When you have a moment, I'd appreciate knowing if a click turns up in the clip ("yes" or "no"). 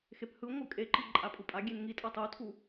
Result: yes